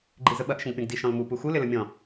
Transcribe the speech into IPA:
ɡ͡ǃizəɓɐʔ ʃə̃ɡpʲɔ̃ɡdi ʃɔ̃lmu puxu lɪləmʲɔ̃

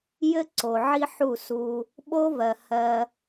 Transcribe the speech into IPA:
jɘ˦ǀo˨ ʕi˦ħu˦˨su˧ | ɓo˦vɜ˨ hɜ˧

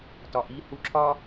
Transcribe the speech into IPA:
tɒʔi huǁʰɒ

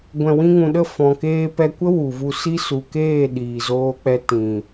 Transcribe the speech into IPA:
ɡʷɛ̃˨wĩ˧ŋũ˨ɗə˦˨ fɔ̃˨keː˧pɛ˧ kʷə˦ wu˨vu˧si˦ su˨keː˦˨ ɗiː˨zoː˧k͡pɛ˧ tĩ˨

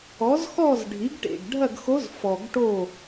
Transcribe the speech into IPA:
ɔ˩˥zxɔ˥˨z ɖʱi˩˥ɡʈḛ˩ɡɖʱɐ˥˨ɡxo˧˥z fɔ˩ɡʈo˧˩

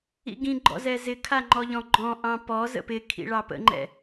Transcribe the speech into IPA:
ḭɡĩɡ͡ǃɔ̰zɛ zɪkʰaŋ͡ǃɔʎɔ̃ ɡ͡ǃɔ̃ʔɑ̃ pɔz ə̰pɪ kʰḭɭɑpə̰ŋ͡ǃɛ̰

